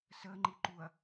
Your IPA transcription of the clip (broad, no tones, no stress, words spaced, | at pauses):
səːŋ͡ǃi ǃuɐ̯